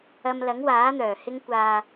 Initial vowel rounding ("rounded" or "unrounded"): unrounded